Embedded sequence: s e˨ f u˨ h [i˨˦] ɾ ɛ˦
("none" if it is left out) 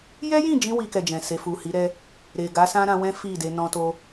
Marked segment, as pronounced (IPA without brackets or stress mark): i˨˦